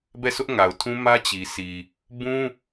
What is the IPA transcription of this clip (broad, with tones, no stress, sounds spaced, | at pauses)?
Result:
b ɛ˦˨ s ʊ˦ ʔ ŋ a˨ ʊ̯ tʰ ũ˦ m ä˦ t͡ɕ i˨ s i˨ | b ũ˦